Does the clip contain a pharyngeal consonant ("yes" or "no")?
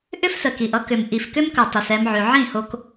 yes